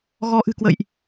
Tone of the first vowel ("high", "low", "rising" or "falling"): rising